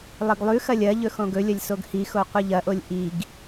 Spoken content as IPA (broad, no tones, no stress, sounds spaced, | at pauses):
lˠ ɨ ɡ lˠ ʉ x ɐ lʲ ɐ ʎ ɵ x õ ɡ ɵ lʲ ɐ lʲ s o ɡ h i x o qʷ ɨ ʎ ɐ ʔ o lʲ ʔ i ɡ